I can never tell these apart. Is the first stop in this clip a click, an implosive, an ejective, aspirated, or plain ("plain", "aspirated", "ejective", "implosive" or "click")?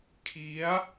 aspirated